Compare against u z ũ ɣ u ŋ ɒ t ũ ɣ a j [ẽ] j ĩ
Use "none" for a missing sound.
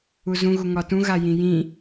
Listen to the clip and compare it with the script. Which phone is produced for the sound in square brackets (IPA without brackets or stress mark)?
ĩ